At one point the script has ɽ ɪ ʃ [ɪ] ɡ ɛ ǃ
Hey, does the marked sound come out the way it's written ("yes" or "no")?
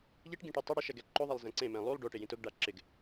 no